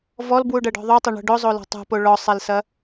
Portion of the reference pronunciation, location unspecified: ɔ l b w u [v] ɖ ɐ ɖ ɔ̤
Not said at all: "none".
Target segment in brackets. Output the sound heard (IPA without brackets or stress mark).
none